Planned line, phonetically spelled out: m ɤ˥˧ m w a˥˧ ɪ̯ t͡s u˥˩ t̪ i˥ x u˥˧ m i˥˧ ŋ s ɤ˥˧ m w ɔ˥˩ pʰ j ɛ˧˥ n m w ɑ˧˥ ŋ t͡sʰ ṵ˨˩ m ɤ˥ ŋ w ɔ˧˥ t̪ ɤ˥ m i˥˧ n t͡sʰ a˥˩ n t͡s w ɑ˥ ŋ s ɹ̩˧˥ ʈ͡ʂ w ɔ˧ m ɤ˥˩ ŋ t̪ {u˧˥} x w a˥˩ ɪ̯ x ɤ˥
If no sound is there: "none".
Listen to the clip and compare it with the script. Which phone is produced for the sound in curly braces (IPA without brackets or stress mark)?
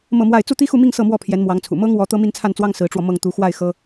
u˧˥